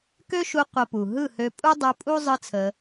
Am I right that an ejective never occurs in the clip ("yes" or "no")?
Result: no